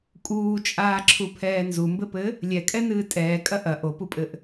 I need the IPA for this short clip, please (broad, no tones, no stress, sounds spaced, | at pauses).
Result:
kʼ uː t͡ʃʼ aː ǁʰ u pʰ ɛː n z u m b ɘ p ɘ | lʲ ɛ kʼ ɛ n ɨː tʼ ɛː kʼ ɐ ʔ ɐ ʔ o p u pʼ ɘ ʔ